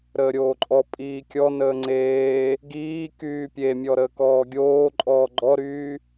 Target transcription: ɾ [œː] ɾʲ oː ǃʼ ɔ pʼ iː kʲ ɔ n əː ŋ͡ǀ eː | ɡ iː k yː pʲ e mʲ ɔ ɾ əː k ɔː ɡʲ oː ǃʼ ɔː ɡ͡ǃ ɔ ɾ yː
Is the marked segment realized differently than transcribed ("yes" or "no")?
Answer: yes